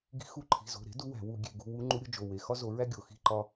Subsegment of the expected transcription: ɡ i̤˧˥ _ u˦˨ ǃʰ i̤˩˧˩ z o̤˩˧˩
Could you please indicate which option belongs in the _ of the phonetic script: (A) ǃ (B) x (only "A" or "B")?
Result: B